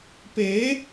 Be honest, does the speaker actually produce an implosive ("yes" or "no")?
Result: no